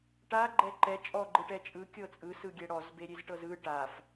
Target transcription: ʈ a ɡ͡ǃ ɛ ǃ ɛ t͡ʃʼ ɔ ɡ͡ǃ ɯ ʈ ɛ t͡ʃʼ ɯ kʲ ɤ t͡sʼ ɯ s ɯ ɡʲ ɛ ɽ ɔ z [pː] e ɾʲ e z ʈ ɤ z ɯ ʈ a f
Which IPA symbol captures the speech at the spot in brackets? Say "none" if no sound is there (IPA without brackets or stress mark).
b